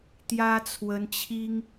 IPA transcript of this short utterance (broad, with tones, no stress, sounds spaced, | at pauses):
t̪ j ä˥ t͡sʰ w ə˥ n t͡ɕʰ i˥ ŋ